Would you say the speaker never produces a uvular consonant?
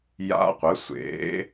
no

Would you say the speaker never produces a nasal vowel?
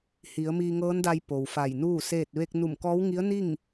yes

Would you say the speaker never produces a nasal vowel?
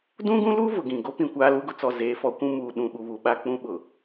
no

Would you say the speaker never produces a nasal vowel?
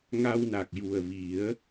yes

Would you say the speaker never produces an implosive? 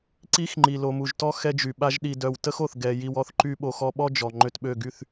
no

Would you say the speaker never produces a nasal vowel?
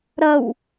yes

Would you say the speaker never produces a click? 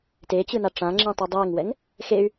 no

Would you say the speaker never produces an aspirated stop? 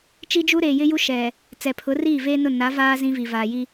no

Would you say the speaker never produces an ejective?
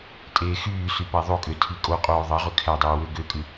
no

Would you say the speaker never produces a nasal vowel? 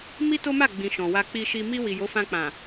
no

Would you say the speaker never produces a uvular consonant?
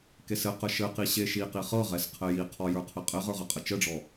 no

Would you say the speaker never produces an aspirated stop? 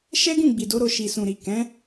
yes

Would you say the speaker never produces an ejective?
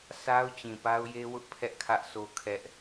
yes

